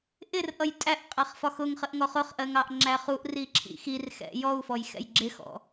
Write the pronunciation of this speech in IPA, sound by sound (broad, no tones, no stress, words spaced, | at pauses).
ʔɪrʔʌj tʼæʔqʼæχ fɒxʊŋχəʔ ŋɔχʊχʔɜŋ ɑʔŋ͡ǁæχuʔri ǁʰḭxirxɛ̰ jɔu̯fɔj xɛ̰jɡ͡ǁɪxɔ̰